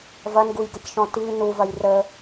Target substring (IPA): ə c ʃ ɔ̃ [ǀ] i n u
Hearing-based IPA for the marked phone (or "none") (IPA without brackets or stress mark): t